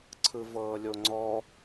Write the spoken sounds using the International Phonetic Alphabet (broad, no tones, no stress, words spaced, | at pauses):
ǀʰɯvɤːlʲoŋ͡ǀɔ